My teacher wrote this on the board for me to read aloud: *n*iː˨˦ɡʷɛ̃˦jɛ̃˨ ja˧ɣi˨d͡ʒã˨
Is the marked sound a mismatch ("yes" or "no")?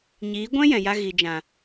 yes